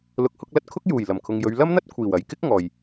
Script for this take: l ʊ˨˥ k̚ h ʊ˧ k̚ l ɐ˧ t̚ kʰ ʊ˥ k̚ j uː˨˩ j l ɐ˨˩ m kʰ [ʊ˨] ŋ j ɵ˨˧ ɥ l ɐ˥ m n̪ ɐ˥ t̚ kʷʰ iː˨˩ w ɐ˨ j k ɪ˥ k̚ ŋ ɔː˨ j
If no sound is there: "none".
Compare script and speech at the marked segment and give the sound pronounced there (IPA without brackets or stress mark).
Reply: ʊ˨